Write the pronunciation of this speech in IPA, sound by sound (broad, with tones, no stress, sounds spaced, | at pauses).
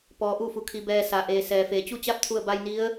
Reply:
p ɔː˩ ʔ u˧˩ f u˩ kʰ i˩ b ɛː˧ s a˩ ʔ eː˩ s ɛː˩ f eː˩ t͡ɕ u˥˨ t͡ɕ a˥˨ p̚ t̪ʰ u˧˩ ə̯ b a˧ j n i˧˥ ə̯